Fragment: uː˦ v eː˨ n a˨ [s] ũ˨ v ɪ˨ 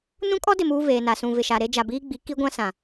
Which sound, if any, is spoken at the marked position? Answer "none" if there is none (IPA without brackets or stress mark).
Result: s